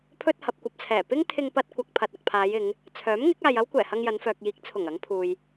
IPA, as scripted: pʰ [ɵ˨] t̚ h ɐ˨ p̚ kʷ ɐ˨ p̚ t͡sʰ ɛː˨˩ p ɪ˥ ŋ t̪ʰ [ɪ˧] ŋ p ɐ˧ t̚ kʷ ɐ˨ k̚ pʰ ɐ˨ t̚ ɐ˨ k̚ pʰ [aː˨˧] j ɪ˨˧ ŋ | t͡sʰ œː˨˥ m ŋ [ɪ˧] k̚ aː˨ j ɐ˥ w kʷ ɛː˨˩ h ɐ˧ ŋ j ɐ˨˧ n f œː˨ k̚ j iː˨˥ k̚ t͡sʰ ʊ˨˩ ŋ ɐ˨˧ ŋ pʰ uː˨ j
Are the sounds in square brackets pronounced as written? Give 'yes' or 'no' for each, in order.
no, yes, yes, no

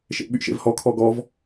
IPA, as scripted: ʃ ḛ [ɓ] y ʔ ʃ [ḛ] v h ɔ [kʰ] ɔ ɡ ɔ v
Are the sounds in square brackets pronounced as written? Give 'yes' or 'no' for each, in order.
yes, yes, yes

